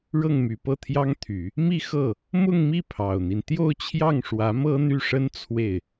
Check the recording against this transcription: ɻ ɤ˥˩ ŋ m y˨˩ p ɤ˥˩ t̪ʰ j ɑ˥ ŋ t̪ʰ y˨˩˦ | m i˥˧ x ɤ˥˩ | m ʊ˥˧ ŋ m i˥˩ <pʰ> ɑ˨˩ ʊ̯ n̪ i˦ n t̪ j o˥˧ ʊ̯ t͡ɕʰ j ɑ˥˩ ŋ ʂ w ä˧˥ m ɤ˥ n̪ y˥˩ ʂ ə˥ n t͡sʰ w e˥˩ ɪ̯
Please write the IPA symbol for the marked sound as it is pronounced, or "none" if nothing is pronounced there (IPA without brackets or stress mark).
pʰ